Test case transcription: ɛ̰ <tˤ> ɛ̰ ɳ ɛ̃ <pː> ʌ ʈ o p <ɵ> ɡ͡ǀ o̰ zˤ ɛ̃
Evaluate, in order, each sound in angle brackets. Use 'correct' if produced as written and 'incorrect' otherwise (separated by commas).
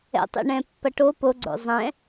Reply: correct, correct, incorrect